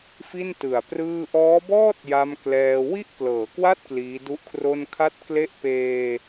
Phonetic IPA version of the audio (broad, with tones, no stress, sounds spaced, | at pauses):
f i˥˩ n t ɯ˨˩ a̯ p r ɯː˥˩ ʔ ɔː˦˥ b ɔː˥˩ t̚ j a˧ m k l ɛː˧ w i˥˩ ʔ k l ɤː˩˦ k w a˥˩ t̚ k l iː˦˥ d u˥˩ ʔ kʰ r o˥˩ n kʰ a˥˩ t̚ k l e˥˩ ʔ p eː˧